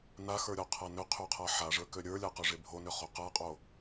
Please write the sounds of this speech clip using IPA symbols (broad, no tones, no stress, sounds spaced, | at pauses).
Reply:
n a x ə˞ ɾʲ ɔ qʰ a n ʏ qʰ ø qʰ a ħ a ʐ ə˞ k ø ɾʲ ə˞ lʲ a q ø ʐ e bʱ o n ʏ χ o q a qʼ o